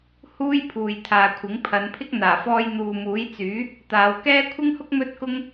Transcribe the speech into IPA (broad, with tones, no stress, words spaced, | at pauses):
huː˥jpʰuː˨j t̪ʰaː˨kʷʰɪ˨˥ŋpʰɐ˨˧npʰɪ˥k̚ n̪aː˨˩fɔː˧j n̪uː˨muː˨˥jt͡syː˨˥ | t̪aː˨˧wkɛː˥ kʷʰɪ˥ŋhʊ˥k̚ mɵ˥t̚kʊ˥ŋ